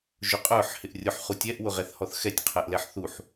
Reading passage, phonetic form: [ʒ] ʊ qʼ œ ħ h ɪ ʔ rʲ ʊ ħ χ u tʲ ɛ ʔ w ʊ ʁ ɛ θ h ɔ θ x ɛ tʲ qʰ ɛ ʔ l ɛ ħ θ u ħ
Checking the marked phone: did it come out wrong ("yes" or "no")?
no